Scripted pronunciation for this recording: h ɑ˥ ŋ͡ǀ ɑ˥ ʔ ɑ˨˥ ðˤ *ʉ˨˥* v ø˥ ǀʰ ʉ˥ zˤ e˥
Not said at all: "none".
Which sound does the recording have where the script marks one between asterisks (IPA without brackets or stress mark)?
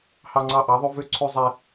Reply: ʉ˥